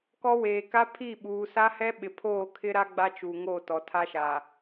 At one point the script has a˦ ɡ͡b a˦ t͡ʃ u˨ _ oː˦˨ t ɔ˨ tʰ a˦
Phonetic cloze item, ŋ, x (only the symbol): ŋ